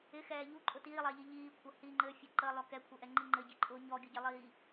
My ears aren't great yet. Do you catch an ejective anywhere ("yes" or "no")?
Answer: yes